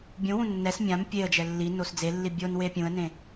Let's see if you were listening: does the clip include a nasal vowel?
yes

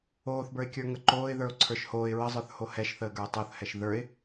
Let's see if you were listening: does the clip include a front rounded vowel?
no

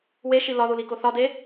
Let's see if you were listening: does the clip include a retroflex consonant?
no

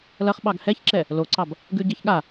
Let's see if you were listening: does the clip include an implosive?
yes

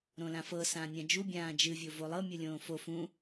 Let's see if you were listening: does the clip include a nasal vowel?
yes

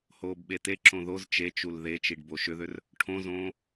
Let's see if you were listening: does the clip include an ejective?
no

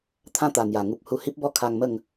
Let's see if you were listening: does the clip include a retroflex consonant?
no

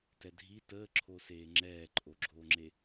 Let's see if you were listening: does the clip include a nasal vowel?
no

